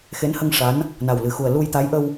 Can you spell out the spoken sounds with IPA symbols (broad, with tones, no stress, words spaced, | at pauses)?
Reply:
xe˧˥nhə˧ŋ ʂa˧˥n | na˨˩wlɨ˨˩xu˨˩ə̯ lu˧jt̪a˧˥jʔə˧w